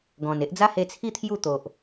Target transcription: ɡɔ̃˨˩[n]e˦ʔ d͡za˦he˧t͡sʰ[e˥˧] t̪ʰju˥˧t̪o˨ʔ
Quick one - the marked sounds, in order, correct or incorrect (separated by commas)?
correct, incorrect